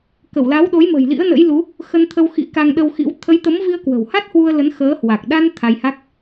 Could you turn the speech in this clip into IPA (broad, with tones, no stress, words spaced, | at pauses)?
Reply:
kə˧˩wla˨˦wɗo˨˦j mə̤˨˩jlḭ˧˥ə̯nə̰˧˥jlu˨˦ | xə˧nt̪ʰə˧wxḭ˧˥ ka˧ŋɗə˧wxḭ˧˥w t̪ʰə˨˦jt̪ə˨˦mvi˧ə̯ kwə̤˨˩wha˦˥t̚hwu˧ə̯ lə˨˦n xəː˨˦hwa˨˩k̚ ɗa˧n t̪ʰa˧jha˦˥k̚